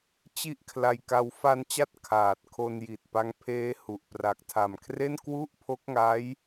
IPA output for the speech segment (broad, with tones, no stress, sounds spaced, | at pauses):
t͡ɕ i˥˩ ʔ kʰ l a˧ j k a˧ w f a˧ n t͡ɕ a˦˥ t̚ kʰ aː˨˩ t̚ kʰ o˧ n j i˨˩ t̚ p a˦˥ ŋ pʰ eː˦˥ h u˨˩ ʔ p r a˨˩ k̚ tʰ a˨˩ m kʰ r e˥˩ n k w u˥˩ ʔ pʰ o˦˥ k̚ ŋ a˦˥ j